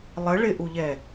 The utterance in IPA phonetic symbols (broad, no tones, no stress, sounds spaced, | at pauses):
lˠ ə ɭ ɪ ʔ u ʎ ɛ